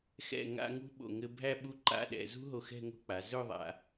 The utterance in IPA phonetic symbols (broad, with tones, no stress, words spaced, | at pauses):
xɛ̰˧˩ŋa̰˧ ŋṳ˥ɓo̰˧˩ ŋɘ˧bʱæ˥˧ ɓu˥ǃa̰˥˧ɗɛ̰˩˧ zṳ˥ɦo˧ xɛ̤˥˧ŋo̤˥˧k͡pa˩˧ zɵ˥˧ðˤa̰˩˧